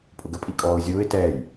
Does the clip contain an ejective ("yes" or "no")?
yes